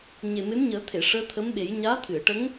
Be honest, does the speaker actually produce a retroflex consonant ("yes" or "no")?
yes